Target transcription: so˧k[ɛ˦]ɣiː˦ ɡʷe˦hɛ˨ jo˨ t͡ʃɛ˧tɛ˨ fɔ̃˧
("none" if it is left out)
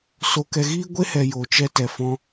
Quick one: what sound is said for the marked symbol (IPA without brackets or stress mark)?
ɛ˧